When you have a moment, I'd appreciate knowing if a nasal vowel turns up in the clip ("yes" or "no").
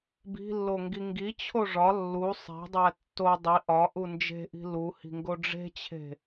no